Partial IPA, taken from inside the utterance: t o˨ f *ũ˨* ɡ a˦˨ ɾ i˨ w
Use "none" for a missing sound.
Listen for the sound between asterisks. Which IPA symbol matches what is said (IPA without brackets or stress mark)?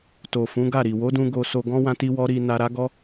ũ˨˦